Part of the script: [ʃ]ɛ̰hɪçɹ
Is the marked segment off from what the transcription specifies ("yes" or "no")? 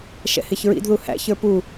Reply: no